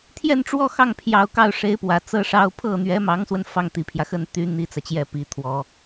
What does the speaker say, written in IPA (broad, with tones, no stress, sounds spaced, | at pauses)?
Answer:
t̪ʰ j ɛ˥˧ n ʈ͡ʂ w ɔ˥˧ x ɑ˥˩ ŋ pʰ j ɑ˥ ʊ̯ k ɑ˥˩ ʊ̯ ʂ e˧˥ ɪ̯ p w ä˨˩ t͡s ɤ˥ ʂ ɑ˥ ʊ̯ pʰ ɤ˥˩ n̪ ɥ ɛ˧˥ m ɑ˧˥ ŋ s w ə˧ n f ɑ˥˩ ŋ t̪ i˨˩ pʰ j ä˦ x ə˥˩ n t̪ y˥ n̪ i˥ t͡s ä˨ t͡ɕ j ɛ˥˩ p i˧˥ t̪ʰ w ɔ˨˩˦